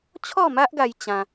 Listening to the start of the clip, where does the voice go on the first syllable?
falling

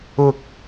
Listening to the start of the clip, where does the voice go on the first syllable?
low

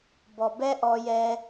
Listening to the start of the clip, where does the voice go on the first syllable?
low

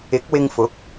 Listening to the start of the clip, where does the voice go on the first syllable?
rising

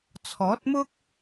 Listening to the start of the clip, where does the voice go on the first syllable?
rising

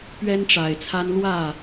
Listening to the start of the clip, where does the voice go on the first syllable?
high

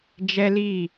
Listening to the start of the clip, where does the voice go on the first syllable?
high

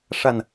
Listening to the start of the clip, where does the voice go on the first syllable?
low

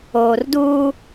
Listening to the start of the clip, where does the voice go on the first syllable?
low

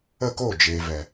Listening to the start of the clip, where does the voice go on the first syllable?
falling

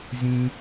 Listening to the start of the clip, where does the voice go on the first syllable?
low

